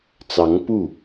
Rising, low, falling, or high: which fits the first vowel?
rising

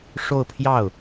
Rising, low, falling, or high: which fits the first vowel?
falling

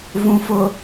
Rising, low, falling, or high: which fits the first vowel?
low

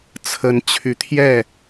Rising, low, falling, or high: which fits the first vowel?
rising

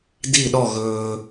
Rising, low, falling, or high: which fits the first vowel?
falling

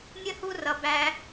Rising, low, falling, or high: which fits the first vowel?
high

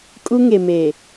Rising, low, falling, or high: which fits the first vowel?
high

